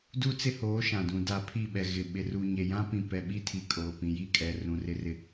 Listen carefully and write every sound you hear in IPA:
du˦t͡sɪ˦hoː˨˦ ʃã˨dũ˨ da˨ pʰi˦˨ɓɛ˨ ɣɪ˨ɓɪ˨ ru˨ ɲe˨jã˦ pĩ˨ pɛ˨ɓi˦tʰi˨ kʼoː˨ pĩ˨ji˦˨kʼɛ˨ rũ˨rɪ˦rɪ˦

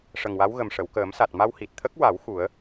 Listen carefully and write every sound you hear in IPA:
ʂə˨˩ŋwa˧˥wɣə˨˩m ʂə˨˩˨wkəː˨˩˦msa˨˩t̚ ma˧whi˨˩t̚t̪ʰə˦˥k̚wa˨˩˦w xu˨˩˦ə̯

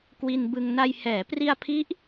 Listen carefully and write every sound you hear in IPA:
kwi˧nbɯ˧ŋ na˧j hɛː˩˦pri˧a̯pʰi˦˥ʔ

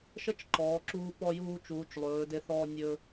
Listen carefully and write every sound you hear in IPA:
ʃə˥t͡ʃǃɔː˩˧ǁuː˧ pɔ˧juː˧t͡ʃuː˩˧t͡ʃ lˠɵː˩˧de˧θɔː˧ nʲɵ˧

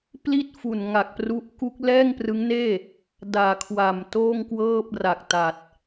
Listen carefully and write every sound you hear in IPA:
pli˥˩t̚fu˨˩nŋa˨˩k̚pru˦˥ʔ ku˦˥k̚ lɛː˥˩ŋprɯ˦˥ŋneː˥˩ | daː˨˩kʰwa˨˩m toː˥˩ŋkwɤː˥˩p̚ra˨˩k̚ta˨˩t̚

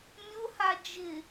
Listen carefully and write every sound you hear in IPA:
mʲʊha d͡ʒɪ

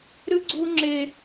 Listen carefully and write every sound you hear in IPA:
ɾɨ˦ɡ͡ǀu˦ŋ͡ǁe˦

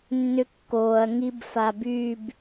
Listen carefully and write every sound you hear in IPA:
nːʏkːoːɐ̯ ŋibfabyb

